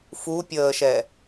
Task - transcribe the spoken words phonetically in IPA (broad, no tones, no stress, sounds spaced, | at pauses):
f u pʲ əː ʃ ɛ